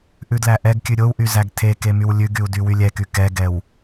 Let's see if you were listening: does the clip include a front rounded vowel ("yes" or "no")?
yes